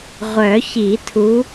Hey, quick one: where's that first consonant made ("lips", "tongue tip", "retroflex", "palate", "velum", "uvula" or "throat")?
uvula